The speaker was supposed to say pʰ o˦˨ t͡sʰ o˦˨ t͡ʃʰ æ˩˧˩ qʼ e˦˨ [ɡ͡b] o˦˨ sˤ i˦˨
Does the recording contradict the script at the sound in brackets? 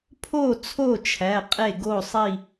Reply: yes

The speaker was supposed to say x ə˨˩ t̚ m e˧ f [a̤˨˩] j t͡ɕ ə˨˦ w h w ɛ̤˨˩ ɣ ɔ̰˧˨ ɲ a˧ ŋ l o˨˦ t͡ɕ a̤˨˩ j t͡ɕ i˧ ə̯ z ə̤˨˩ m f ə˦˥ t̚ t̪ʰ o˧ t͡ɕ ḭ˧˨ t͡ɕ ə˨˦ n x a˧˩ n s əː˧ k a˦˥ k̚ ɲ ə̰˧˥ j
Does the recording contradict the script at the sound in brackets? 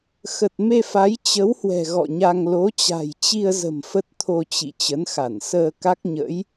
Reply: yes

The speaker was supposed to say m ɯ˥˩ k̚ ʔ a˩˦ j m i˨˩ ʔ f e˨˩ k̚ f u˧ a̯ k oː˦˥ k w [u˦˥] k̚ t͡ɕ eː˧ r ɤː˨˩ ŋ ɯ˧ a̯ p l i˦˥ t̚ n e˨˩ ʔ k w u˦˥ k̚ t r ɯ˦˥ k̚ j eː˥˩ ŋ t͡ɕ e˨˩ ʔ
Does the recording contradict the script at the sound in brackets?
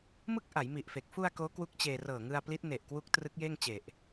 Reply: no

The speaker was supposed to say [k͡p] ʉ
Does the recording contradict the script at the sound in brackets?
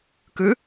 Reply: yes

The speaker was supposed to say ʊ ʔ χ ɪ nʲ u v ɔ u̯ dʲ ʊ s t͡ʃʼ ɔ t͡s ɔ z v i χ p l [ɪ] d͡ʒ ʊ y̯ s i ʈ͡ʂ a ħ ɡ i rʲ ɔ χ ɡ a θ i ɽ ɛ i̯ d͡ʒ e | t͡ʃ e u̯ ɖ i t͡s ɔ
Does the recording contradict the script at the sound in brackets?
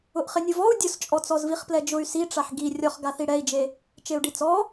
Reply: yes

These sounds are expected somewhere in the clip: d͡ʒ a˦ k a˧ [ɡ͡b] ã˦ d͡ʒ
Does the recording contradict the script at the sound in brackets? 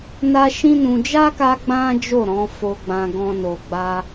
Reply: no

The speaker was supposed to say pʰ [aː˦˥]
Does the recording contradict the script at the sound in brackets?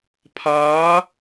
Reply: no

